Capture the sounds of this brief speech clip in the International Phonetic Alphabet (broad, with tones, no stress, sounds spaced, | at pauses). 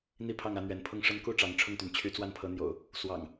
n̪ i˥˨ pʰ ɑ˥˨ ŋ ä˨˦ n̪ ɥ ɛ˨˦ n pʰ ʊ˥˨ ŋ ʂ ə˦ n k u˥˨ ʈ͡ʂ ɑ˨˦ ŋ ʈ͡ʂʰ ʊ˥˨ ŋ t̪ y˩ n t͡ɕʰ y˦ t͡s w a˥˨ n pʰ ɤ˨˦ n̪ j o̰˨˩ ʊ̯ | s w ɑ̰˨˩ ŋ